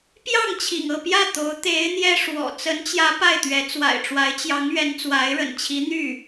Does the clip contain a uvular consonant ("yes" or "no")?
no